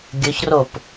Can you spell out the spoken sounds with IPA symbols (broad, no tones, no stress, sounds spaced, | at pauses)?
ɡʲ ɵ ç r o p